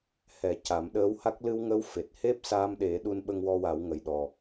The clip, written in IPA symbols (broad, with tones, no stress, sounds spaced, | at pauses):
h ɛ˨˩˦ c a˨˩˦ m ɗ əː˧˥ w h a˦˥ k̚ l ɨ˧ w ŋ ə˧˥ w f e˨˩ t̚ h e˦˥ p̚ s a˧ m ɗ e˨˩˦ ɗ u˧ n ɓ ə˧ ŋ w ɔ˧ w a˨˩˦ w ŋ ə˨˩ j ɗ ɔ˨˩